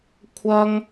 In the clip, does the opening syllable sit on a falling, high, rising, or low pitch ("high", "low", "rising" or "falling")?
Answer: high